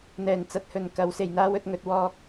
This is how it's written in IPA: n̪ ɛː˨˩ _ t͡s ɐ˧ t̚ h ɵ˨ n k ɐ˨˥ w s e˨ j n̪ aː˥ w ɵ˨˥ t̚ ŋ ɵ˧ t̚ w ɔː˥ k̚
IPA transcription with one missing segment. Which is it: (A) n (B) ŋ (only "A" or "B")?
A